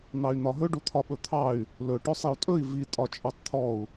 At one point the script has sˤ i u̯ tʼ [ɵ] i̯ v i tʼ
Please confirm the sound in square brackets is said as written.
yes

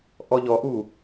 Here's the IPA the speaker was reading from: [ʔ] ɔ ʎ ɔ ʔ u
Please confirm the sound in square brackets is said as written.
yes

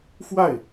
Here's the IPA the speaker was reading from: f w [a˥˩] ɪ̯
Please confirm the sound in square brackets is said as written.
yes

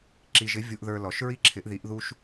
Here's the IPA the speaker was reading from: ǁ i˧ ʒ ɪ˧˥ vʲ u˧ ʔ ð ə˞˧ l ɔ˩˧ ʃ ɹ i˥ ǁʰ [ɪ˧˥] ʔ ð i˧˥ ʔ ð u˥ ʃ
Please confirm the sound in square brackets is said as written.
yes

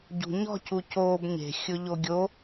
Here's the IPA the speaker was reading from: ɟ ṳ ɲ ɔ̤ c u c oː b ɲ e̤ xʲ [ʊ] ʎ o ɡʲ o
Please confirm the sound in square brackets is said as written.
yes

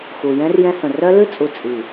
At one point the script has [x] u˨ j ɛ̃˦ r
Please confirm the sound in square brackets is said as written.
yes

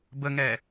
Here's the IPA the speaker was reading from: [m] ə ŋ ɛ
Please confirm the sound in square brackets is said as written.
no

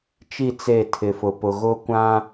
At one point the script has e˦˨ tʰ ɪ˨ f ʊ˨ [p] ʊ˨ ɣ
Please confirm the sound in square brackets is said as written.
yes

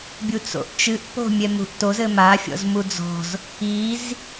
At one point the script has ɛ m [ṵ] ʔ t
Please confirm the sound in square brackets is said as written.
no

